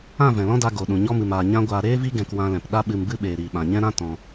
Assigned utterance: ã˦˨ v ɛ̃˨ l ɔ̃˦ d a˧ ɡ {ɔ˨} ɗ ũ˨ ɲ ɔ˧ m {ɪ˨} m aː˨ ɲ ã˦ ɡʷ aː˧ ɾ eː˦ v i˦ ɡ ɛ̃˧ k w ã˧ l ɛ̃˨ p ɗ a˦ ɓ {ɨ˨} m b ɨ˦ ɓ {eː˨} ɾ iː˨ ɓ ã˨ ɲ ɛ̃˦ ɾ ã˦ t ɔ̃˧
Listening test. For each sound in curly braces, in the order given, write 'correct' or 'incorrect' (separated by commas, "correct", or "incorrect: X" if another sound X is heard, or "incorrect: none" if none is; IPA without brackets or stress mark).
incorrect: o˨, incorrect: ɨ˨, incorrect: ɨ˧, correct